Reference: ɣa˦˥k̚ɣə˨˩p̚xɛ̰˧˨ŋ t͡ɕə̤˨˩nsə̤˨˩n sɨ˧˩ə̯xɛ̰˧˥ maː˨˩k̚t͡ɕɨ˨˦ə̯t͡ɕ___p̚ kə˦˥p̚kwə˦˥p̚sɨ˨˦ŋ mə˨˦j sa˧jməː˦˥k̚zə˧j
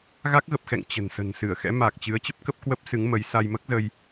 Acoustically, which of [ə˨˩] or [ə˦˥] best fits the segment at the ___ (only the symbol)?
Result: ə˦˥